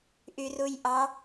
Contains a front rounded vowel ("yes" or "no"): yes